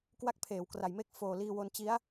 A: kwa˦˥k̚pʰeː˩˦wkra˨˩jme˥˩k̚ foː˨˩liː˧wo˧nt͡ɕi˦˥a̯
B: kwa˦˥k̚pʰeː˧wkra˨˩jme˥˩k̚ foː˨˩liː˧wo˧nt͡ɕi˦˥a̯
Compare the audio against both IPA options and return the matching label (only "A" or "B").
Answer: A